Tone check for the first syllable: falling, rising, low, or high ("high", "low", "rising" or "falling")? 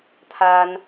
high